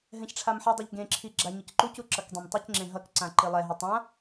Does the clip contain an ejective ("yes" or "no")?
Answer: no